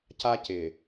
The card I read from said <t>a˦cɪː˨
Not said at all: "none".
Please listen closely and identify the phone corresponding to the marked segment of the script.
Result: c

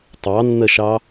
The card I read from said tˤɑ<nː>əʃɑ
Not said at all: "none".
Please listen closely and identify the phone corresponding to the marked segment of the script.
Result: nː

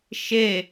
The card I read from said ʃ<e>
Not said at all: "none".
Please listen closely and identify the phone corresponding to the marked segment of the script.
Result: e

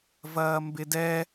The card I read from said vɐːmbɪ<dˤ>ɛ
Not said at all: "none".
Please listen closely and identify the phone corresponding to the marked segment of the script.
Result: d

